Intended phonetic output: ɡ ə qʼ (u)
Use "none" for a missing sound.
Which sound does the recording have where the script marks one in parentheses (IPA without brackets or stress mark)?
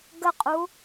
u